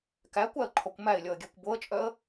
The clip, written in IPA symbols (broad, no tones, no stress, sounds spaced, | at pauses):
k æ kʷ æ ə̯ ǃʰ ɔ kʷ m æ ɪ̯ lʲ ɔ ə̯ ɡʲ æ kʷ b o ə̯ t͡ʃʼ œ ə̯